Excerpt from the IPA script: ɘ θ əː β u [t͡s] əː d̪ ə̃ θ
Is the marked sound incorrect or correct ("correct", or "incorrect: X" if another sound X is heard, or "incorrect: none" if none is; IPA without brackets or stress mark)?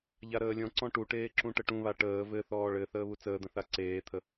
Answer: correct